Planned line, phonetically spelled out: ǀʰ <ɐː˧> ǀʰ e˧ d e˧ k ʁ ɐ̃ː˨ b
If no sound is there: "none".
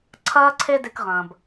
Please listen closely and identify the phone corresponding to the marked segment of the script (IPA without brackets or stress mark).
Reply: ɐː˧